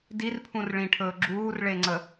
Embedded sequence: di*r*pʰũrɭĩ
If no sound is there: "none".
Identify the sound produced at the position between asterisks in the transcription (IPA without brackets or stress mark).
r